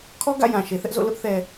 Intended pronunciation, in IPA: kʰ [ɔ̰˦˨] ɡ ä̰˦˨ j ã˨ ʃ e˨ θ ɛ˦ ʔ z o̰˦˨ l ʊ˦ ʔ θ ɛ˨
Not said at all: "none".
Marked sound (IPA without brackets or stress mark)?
ɔ˦